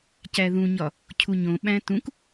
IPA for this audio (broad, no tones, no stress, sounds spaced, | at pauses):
c æ ð ũ ɲ ɒ | cʰ u ɲ õ ɓ æ̃ t ũ k